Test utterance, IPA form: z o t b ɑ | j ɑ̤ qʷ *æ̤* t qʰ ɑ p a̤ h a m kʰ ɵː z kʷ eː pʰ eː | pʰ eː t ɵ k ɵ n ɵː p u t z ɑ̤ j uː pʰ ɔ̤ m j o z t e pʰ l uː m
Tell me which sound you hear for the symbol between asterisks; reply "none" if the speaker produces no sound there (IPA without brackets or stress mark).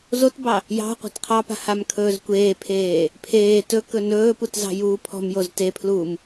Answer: a̤